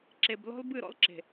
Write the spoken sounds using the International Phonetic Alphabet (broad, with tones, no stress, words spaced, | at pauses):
ǁe˨b lɔ̤˦lbɨ˦˨ɾɔ̰˦l ǁe̤˨